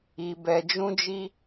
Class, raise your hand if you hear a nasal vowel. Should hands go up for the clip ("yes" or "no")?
yes